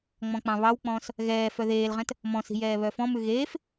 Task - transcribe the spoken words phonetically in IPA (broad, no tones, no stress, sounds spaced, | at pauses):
ŋ͡m ɔ̃ k͡p ɑ̃ β ɑ w k͡p ɔ̃ː s | ɣ ɛː f œ ð eː l ʁ ɛ̃ t | m ɔ̃ s i̤ j ɛː β œ f ɔ̃ m ʉ ɣ eː f